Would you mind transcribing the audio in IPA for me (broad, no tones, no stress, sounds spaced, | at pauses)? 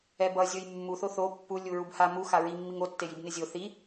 ɛ b ʌ zʲ o j mː u θ o θ o pː u lʲ u ɹ u b h a m u x a ɹ i mː i ŋ o tː e j i b n e zʲ o θ i